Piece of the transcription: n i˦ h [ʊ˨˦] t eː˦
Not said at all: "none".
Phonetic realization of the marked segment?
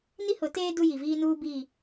ʊ˨˦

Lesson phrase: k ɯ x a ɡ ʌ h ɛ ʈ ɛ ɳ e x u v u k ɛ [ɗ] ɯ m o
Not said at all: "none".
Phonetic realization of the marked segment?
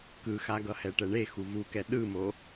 ɗ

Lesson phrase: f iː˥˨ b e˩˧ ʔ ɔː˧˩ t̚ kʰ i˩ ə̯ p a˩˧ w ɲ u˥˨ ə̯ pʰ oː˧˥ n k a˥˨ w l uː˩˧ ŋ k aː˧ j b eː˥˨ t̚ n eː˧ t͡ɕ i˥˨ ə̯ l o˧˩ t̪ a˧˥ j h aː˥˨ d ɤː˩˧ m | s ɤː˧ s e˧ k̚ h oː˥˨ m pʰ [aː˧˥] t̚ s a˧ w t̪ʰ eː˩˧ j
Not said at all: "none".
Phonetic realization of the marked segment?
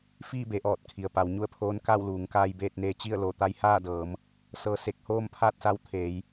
aː˥˨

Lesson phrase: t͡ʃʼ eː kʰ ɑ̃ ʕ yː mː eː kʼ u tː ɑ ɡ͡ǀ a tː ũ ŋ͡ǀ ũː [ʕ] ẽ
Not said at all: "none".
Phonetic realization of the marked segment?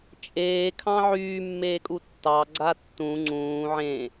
ʕ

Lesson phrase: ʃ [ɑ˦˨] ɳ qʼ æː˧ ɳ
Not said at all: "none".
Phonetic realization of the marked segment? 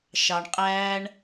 ɑ˨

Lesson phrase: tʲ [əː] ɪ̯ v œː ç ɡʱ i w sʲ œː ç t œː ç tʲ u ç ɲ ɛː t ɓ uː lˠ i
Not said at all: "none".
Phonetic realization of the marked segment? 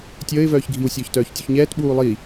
əː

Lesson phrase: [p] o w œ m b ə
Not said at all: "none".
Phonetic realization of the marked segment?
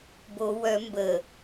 b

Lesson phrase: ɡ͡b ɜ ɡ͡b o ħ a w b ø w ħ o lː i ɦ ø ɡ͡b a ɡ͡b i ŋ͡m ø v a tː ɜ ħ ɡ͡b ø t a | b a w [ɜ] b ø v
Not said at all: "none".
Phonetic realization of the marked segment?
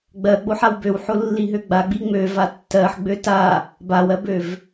ɜ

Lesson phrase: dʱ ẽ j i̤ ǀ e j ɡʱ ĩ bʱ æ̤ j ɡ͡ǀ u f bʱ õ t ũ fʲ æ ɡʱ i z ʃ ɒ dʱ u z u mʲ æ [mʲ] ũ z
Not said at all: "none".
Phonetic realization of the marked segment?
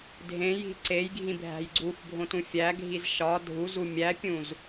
pʲ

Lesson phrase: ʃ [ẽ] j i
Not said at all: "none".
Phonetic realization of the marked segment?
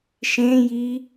ẽ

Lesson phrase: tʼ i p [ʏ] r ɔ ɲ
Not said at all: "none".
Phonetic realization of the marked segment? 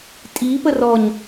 ə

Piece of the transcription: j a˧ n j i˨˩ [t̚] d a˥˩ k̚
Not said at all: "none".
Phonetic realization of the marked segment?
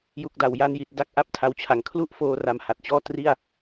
t̚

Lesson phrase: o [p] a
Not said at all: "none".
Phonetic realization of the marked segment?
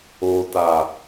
t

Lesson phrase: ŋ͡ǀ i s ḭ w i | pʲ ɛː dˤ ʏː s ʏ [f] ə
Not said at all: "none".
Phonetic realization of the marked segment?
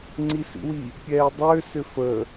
f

